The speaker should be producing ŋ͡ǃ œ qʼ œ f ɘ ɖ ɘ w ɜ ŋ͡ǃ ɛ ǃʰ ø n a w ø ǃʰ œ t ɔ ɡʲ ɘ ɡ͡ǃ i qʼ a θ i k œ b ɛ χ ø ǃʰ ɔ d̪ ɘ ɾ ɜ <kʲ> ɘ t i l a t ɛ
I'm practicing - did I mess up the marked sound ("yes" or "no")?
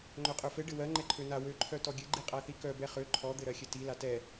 yes